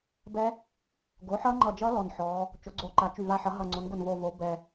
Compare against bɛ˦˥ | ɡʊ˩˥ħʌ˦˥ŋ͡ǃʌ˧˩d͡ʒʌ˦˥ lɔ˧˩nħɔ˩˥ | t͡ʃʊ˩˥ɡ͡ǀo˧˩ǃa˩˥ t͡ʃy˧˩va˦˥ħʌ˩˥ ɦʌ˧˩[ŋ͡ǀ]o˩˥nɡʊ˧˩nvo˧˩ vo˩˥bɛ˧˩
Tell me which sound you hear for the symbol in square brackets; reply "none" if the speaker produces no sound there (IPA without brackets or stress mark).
ŋ͡ǀ